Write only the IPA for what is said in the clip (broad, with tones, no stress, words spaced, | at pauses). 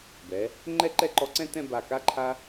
bɛ˩˧ | ŋ͡ǃɛ˥˧ǃɛ˥˧ǃɔ˧ǀɛ̃˥˧ tɛ̃˥˧ba˧˩ka˥˧ ǃʰa˥